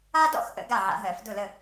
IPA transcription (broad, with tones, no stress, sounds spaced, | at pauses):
a˥ d ɔ̰˥˨ x ʔ ə̰˨˩˦ ɡ a˥˨ ʕ a̰˨˩˦ ɦ ɜ˨˩˦ f d ʊ˥˨ l ə˥˨